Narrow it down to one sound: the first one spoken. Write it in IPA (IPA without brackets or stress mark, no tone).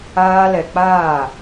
aː